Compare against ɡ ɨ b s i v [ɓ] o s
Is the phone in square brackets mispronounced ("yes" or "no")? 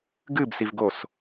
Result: yes